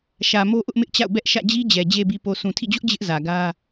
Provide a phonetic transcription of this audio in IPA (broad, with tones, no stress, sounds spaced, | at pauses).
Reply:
ʃ ä˨ m o˦ ʔ ʊ˦ ʔ m ɪ˦ ʔ t͡ɕ a̰˦˨ ʊ̯ b ɛ˦ ʔ ʃ ä̰˦˨ d͡ʑ i˦ d͡ʑ ɛ˨ d͡ʑ e˨ b i˨ p o˨ s ũ˨ tʰ ḭ˦˨ d͡ʑ ʊ˦ ʔ d͡ʑ ɪ˦ ʔ z ä˨ ɡ ä˦